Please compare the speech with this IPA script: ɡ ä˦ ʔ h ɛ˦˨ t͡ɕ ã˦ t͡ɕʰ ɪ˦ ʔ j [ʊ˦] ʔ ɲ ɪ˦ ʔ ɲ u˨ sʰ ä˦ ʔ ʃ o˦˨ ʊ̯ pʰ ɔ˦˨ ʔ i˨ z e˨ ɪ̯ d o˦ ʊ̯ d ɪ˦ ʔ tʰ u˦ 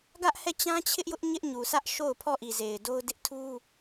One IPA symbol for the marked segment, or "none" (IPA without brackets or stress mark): ʊ˦